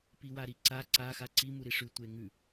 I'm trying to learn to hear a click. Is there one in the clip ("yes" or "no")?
yes